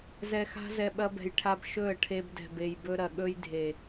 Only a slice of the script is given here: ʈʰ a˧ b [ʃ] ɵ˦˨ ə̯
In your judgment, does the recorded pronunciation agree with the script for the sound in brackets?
yes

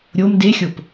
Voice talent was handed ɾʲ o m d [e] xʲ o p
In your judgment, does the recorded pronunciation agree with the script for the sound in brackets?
yes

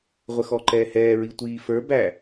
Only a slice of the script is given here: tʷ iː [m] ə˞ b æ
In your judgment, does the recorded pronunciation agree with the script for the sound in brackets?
no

